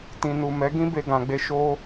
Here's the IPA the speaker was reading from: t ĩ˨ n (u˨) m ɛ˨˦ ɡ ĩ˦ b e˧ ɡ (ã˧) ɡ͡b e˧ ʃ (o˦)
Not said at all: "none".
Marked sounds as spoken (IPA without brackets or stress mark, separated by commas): u˨, ã˨, o˦